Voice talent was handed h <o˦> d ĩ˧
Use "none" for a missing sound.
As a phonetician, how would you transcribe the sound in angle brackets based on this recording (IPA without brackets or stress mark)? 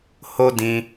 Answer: o˦